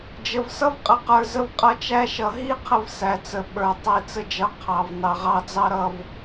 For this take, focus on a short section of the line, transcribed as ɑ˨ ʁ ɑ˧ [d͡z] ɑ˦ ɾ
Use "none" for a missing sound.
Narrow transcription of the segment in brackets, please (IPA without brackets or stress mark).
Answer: d͡z